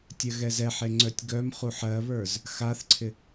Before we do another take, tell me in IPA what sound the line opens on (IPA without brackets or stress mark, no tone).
tʲ